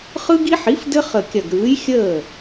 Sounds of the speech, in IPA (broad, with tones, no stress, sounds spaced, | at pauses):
χ ɯ˦ ɡ i˦ ħ i˩˥ f d ɘ˦ χ ə˧˩ kʲ ɐ˧˩ ɡ ɾ ɯː˩˥ j xʲ əː˥˩